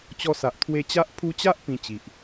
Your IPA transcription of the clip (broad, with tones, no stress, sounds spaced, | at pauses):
t͡ɕ ɔ˧ s a˨ ʔ t̪ʰ w e˧ t͡ɕ a˦ ʔ pʰ u˧ t͡ɕ a˦ ʔ p ĩ˧ t͡ɕ i˨ ʔ